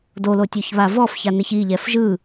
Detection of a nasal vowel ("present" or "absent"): absent